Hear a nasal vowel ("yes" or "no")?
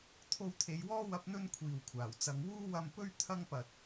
no